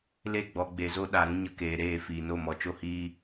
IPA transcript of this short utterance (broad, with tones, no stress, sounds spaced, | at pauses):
l e˦˨ ɡ͡b ɔ˨ ɡ͡b e˨ z o˦ ɗ a˨ ɾ ũ˦ ɲ ə˧ k eː˨ ɾ eː˦˨ f iː˨ n o˦˨ m ɔ˨ t͡ʃ o˦ h iː˦